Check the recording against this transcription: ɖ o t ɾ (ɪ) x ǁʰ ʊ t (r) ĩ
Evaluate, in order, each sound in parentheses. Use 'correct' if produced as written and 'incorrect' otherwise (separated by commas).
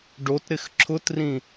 correct, correct